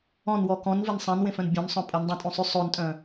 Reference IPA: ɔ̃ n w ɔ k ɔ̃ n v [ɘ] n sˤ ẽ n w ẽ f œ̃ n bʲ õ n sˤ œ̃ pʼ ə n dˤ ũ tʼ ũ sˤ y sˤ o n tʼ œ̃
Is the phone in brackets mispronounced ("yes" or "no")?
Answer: yes